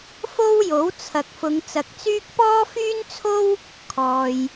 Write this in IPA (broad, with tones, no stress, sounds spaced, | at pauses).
f o˥ w j o˨˥ w t͡sʰ ɐ˨ k̚ f ʊ˨˧ ŋ t͡s ɐ˨ k̚ t͡s yː˥ k̚ p ɔː˥ f yː˥ n t͡sʰ o˥ w | kʰ ɔː˨ j